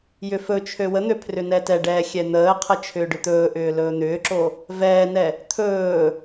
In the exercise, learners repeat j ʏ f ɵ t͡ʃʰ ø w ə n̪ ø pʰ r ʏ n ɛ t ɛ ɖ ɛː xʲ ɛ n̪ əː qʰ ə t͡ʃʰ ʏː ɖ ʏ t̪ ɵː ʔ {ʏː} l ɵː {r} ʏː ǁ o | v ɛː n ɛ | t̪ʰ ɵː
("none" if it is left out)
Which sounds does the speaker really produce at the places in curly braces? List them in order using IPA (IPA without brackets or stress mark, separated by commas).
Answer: ʏː, n̪